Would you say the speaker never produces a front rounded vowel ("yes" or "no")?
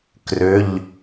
no